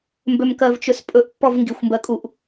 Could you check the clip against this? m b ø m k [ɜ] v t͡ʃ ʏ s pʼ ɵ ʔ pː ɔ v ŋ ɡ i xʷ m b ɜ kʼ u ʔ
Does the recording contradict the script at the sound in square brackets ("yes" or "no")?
no